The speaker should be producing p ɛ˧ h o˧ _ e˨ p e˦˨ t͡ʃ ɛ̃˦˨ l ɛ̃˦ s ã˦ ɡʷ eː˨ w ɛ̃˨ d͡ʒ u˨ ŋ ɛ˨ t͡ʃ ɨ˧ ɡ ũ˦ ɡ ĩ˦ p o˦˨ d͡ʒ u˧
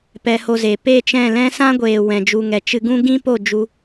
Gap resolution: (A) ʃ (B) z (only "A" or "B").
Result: B